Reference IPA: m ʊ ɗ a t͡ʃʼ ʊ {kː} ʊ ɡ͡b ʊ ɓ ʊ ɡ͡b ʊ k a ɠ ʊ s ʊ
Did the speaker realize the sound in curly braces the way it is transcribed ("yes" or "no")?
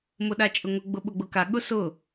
no